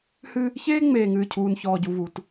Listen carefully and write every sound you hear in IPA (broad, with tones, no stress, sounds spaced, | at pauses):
h ɨ˦ | ç eː˦ ŋ͡m eː˨ ŋ ɨː˨ cʰ uː˨ n ç ɔː˨ ɟ u˨ v u˨ t